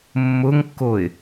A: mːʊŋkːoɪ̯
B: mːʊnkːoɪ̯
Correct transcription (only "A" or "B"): A